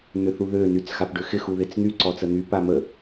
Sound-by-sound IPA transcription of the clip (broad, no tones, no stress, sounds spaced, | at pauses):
n̪ ʏ θ u ð ø n y t͡s x a p ɖ ʏ x ɪ x u ð ɪ t͡s n̪ y ǀ ɔ t͡s ə n̪ y p a m ə